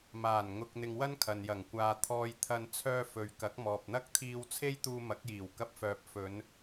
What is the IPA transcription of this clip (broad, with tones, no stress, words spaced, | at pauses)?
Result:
maː˨˩nŋʊ˨k̚ n̪ɪ˧ŋwɐ˥n kʰɐ˨njɐ˨˩ŋ kʷaː˨ t̪ʰɔː˧jt̪ʰɐ˧n t͡sʰœː˧fɵ˨ɥ kɐ˨˥k̚mɔː˨p̚n̪ɐ˥k̚ t̪ʰiː˧wt͡sʰe˥j t̪uː˧mɐ˨˥k̚jiː˨˩w kɐ˧p̚fœː˨p̚ fɵ˨˧n